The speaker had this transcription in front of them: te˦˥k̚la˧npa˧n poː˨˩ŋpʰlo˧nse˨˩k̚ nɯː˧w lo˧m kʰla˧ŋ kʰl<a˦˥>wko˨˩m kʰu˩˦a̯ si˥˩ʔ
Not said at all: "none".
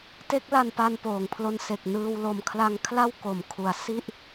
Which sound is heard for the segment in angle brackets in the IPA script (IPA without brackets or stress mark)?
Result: a˥˩